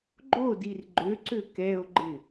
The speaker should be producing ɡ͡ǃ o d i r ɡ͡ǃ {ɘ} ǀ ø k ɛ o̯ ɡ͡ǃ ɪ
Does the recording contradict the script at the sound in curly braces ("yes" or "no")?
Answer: yes